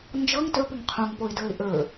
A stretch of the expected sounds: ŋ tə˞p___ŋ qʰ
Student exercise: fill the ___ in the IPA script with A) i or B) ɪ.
B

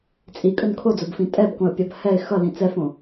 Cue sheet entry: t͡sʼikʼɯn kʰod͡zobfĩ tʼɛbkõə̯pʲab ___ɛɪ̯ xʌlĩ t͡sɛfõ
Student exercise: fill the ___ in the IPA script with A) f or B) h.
B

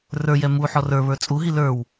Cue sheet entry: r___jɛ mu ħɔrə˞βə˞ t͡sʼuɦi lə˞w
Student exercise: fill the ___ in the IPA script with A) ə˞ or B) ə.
A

